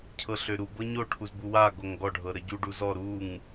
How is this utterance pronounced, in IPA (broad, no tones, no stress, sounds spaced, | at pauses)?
cʰ ɤ ɬ ø ɾ u b ɤ ɲ o ʈʰ u z b u w a ɡ o ŋ ɡ ɔ ɖʱ ɤ ɾ ə ɟ u ɖ u z ɔ ɾ u ŋ